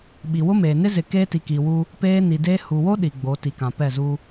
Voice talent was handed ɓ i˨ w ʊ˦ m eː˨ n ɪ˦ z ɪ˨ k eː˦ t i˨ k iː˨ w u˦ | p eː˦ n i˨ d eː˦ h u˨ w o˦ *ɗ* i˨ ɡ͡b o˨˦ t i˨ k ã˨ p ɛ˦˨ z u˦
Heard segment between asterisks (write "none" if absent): ɗ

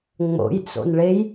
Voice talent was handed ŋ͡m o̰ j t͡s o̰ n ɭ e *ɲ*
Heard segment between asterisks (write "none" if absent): j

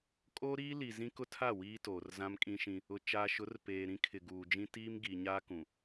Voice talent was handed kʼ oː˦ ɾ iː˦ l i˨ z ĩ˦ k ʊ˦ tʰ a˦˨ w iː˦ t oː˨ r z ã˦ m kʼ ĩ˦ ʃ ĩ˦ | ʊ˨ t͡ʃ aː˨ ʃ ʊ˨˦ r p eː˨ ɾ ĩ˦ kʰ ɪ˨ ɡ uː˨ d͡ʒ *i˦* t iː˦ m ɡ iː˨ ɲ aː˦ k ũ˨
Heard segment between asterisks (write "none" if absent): ĩ˦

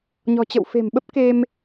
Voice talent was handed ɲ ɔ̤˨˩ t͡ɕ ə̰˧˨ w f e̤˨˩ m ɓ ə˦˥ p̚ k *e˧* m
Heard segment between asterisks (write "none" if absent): e˧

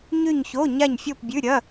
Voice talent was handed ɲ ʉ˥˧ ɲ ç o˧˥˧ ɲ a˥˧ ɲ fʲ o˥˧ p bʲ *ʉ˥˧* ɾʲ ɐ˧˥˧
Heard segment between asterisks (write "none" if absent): ʉ˧˥˧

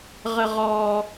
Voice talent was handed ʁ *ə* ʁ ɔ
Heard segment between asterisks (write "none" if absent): ə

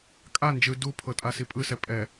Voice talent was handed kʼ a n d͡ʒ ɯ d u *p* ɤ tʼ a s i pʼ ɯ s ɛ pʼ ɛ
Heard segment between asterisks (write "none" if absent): pʰ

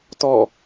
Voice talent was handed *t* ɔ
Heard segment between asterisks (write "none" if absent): t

